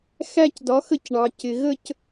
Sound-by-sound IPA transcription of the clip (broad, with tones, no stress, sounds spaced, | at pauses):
x æ˥˧ c d ɒ˨˥ x ə˥˩ c ɳ ɑ˨ c ɪ˨ ɣ ə˥˧ c